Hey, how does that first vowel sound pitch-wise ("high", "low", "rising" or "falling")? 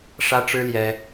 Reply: high